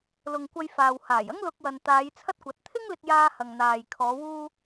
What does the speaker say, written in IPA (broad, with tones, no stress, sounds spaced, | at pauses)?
l ʊ˨ ŋ kʷ ɐ˧ j f aː˨ w h aː˨˩ j ɐ˥ ŋ l ʊ˧ k̚ w ɐ˨ n t̪ aː˨˧ j t͡sʰ ɐ˥ t̚ kʷ ɐ˨˥ t̚ t̪ʰ ɪ˥ ŋ l ɪ˧ k̚ j aː˧ h ɐ˨ ŋ n̪ aː˨ j kʰ ɔː˨˧ w uː˧